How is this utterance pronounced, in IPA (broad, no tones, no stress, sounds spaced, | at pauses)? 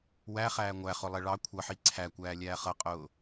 w æ χ æː ŋʷ æ χ ʊ lˠ ɛ ɭ ɑ kʷʰ ʌ ħ i ǀʰ æ kʷ æː lʲ æː χ ʌ qʼ ʊː